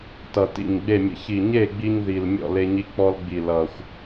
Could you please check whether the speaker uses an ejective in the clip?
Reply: no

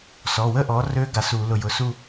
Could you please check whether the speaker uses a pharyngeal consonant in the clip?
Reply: no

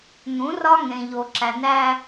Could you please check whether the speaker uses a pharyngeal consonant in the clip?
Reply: no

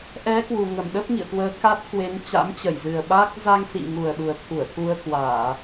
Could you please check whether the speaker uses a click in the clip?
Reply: no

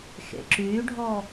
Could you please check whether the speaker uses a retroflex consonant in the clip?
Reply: yes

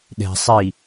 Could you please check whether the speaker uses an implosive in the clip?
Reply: yes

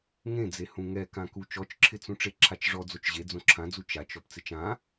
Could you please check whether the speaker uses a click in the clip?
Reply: yes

